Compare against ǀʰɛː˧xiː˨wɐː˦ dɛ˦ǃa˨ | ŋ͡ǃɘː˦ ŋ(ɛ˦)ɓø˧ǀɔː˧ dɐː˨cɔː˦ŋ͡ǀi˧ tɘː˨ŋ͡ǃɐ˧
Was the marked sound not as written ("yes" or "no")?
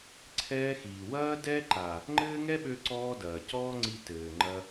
no